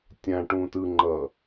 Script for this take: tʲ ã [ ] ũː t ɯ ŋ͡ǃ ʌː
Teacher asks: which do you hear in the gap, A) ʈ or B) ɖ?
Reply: A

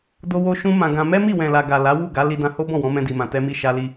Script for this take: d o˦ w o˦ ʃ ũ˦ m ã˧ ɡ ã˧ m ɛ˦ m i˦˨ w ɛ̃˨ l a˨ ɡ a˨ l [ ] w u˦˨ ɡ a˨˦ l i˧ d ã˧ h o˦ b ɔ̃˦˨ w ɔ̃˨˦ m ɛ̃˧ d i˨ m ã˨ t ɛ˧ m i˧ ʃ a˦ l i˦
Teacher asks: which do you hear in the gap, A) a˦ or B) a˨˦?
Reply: B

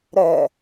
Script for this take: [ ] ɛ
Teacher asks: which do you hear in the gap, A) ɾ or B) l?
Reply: A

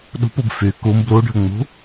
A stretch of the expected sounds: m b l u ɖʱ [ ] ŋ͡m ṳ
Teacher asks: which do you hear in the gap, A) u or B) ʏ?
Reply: B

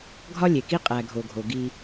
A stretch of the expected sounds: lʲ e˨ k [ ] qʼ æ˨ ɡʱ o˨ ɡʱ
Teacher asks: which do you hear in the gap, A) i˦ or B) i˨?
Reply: A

